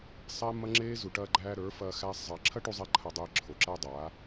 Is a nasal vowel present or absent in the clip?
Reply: absent